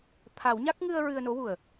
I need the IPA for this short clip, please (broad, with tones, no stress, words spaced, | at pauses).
t̪ʰa˨˩˦wɲa˦˥k̚ ŋɨ˧ə̯ ɹɨ˧ə̯no˧˥wu˨˩ə̯